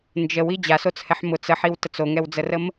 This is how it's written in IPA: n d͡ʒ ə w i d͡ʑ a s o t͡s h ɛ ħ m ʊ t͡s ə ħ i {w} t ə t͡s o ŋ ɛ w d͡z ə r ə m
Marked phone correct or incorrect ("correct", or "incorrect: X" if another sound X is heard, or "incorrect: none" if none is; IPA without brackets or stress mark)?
correct